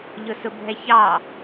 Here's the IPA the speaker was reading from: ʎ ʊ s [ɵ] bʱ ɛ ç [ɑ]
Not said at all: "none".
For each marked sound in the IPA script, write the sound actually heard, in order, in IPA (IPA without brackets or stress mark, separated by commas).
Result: ʊ, ɑ